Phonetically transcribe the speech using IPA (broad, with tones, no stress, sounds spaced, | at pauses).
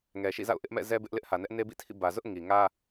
ŋ ɛ˨ ʃ ḭ˦˨ z a̰˦˨ ʊ̯ ʔ ɪ˦ ʔ m ɛ̰˦˨ z ɛ˦ b ɪ˦ ʔ l ɪ˦ ʔ h ä˨ n ɛ˦ ʔ n e˦ b ḭ˦˨ tʰ ḭ˦˨ b ä˨ z ʊ˦ ʔ ŋ i˨ ŋ ä˦